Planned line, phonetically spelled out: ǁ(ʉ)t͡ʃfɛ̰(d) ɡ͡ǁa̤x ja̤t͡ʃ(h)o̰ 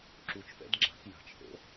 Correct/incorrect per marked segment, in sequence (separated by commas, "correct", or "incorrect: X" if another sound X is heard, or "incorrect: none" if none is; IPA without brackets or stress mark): incorrect: u, correct, correct